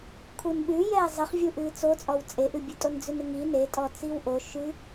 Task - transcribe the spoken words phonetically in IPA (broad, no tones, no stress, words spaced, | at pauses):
kʰunɓʉ jɛːzˤɨχvʲu ʔɨːt͡sot͡sʼɔw t͡sʼeʔɨbʲʉtʼon d͡zʉnɨŋi netʼɔt͡siw ʔo ʃʉ